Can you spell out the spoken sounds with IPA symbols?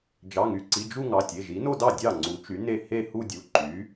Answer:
d͡ʒ ɑ˩˧˩ ŋ y˩˧˩ ǀ i˩˧˩ d͡ʒ u˥˧ ŋ ɑ˩˧˩ tʲ e˩˧˩ ʒ i˩˥ n o˥˧ d ɑ˥˩ dʲ ɑ˥˩ ŋ͡ǀ u˩˥ t͡ʃ y˩˥ n e˥˩ h e˥˧ h u˥˧ dʲ u˩˧˩ ǃ y˩˥

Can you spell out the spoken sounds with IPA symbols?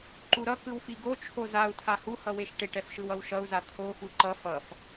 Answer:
ǃ u ɾ ʌ k ɯ w f i ɡ o t͡ʃʰ o z a u̯ tʰ a h u h ʌ w e ʃ ʈ e ʈ ɛ f ʃ ɯ w ʌ w ʃ ʌ u̯ z a t̪ʰ o f u ǃ ʌ f ʌ f

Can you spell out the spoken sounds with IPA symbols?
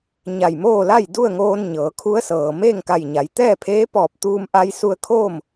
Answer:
ɲ a˧˩ j m oː˥˨ l a˥˨ j d u˥˨ ə̯ ŋ oː˧ n ɲ ɤː˩˧ kʰ u˧˥ ə̯ s ɤː˩ m eː˥˨ ŋ k a˧˩ j ɲ a˩˧ j t̪ ɛː˥˨ pʰ eː˧˥ p ɔː˧˩ p̚ t̪ uː˧ m ʔ a˧ j s u˧ ə̯ kʰ oː˥˨ m

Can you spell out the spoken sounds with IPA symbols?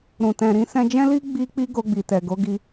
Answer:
ɾ ũ˨ t ɛ̃˨ ɾ ĩ˧ s ɛ̃˧ d͡ʒ ɛ̃˦ l i˦ ɡ͡b i˦ k͡p i˦ ɡ o˧ ɡ͡b i˨ t ɛ˨ ɡ o˨˦ ɡ i˧

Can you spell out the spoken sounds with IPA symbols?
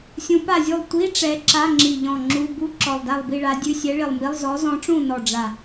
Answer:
sʲ ũ˧˥ p a˥˨ zʲ u˥˨ lˠ tʷ i˧˥˧ ʈ͡ʂ ɛ˧˥ ǁ a˧˥˧ ŋ͡ǁ i˧˩ ʎ ɔ̃˧˩ ŋ͡ǁ u˧˥˧ b u˧˥˧ ǁ ɔ˧˩ lˠ d a˥˨ lˠ b i˥˨ ɭ a˧˥ dʲ ʉ˧˥˧ sʲ ɛ˧˥ ɭ i˧˩ lˠ m i˧˥˧ lˠ z ɔ˧˥ z ɔ̃˧˥ ʈ͡ʂ ũ˥˨ n ɔ˧˩ ɖ͡ʐ a˧˩

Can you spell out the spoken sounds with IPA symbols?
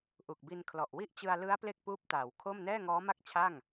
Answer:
ʔ u˨˩ k̚ b i˧ n kʰ l ɔ˨˩ ʔ w i˥˩ ʔ t͡ɕ ɯ˧ a̯ l ɯ˦˥ a̯ p l e˥˩ k̚ p uː˦˥ p̚ t aː˩˦ w kʰ o˥˩ m n ɛː˥˩ ŋ ɔː˦˥ m a˥˩ k̚ t͡ɕʰ a˥˩ ŋ

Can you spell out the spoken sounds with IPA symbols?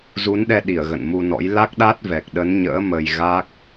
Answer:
z u˨˦ n ɗ ɛ˧ ɗ i˧˩ ə̯ ɣ ə̰˧˨ n m u˧ n ɔ̰˧˥ j l a˦˥ k̚ ɗ a˦˥ t̚ v ɛ˨˩ k̚ ɗ ə˨˦ n ɲ ə̰ː˧˥ m ə˧ j ɣ a˦˥ k̚

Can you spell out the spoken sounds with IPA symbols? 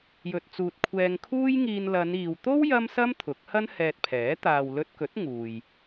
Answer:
j ɵ˨ t̚ t͡s uː˨ t̚ kʷʰ ɛː˧ ŋ kʰ uː˥ j ŋ iː˧ n l ɐ˨˧ n iː˨ w t̪ o˥ w j ɐ˥ m s ɐ˥ m t̪ʰ ʊ˨˥ k̚ h ɐ˥ n h ɛː˧ t̚ pʰ ɛː˨˥ t̪ aː˨ w l ɵ˧ t̚ k ɵ˨˥ t̚ ŋ uː˨ j

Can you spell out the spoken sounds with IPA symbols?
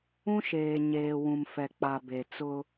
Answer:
ũ˦ ʃ eː˨ ɲ eː˨ w ũ˨ m f ɛ˨ k͡p a˨ b e˨ t͡s ʊ˦

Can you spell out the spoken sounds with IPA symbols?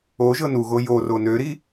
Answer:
o ʒ ɤ n u ɣ o j o r o n ø ɾ i

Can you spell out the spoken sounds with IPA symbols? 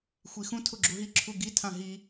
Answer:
xʷ i x ũ tʰ ʊ ɡ͡ǁ u ɦ i ǁʰ u ɡ i tʰ ã ɦ i

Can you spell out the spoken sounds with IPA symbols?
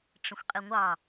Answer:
ʈ͡ʂ ə̃ xʷ qʼ i ŋʷ ɑ

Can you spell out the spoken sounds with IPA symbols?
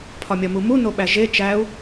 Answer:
pʰ ɒ mʲ ɒ m u m u n o ɓ æ ʒ e t͡ʃ æ u̯

